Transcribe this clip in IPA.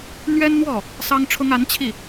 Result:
n̪ ɥ ɛ˥ n n̪ w ɔ˥˩ | s ɑ˥ ŋ ʈ͡ʂʰ ʊ˥ ŋ a˧˥ n t͡ɕʰ i˥˩

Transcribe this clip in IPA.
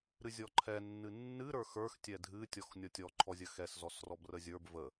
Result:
ɾ ɨ zʲ ɔ ǃʰ ɛ nː ɨ nː ɨ ɾ ə˞ x ə˞ x tʲ ɛ dʱ ɨ tʲ ɔ x nʲ ɔ tʲ ɔ ǃʰ ɔ zʲ ə x ɛ s z ɔ s r ɔ b r ə zʲ ə˞ b v ə

